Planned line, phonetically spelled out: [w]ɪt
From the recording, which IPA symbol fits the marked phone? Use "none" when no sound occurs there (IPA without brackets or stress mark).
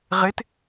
ʁ